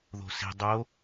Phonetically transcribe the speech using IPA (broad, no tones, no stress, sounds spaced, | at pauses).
ð o̤ s i̤ dˤ o